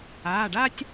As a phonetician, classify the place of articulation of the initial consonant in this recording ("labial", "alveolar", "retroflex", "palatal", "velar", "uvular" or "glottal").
retroflex